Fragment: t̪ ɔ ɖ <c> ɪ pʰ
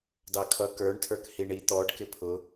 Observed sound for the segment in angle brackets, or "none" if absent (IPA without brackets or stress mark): k